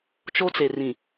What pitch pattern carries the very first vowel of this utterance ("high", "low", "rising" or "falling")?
high